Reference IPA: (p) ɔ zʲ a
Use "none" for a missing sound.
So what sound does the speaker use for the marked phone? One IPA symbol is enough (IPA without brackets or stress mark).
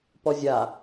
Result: p